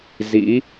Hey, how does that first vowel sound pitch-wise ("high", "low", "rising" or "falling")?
rising